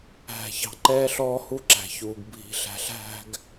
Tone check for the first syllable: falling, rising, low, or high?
low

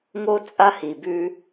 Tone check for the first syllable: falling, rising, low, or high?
high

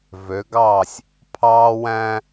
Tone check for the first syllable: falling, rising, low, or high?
rising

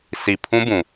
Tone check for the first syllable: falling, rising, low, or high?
low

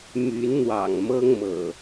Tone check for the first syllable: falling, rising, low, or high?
rising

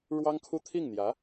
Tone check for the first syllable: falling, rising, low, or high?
high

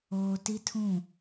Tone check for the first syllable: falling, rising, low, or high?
low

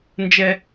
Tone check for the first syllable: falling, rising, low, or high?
low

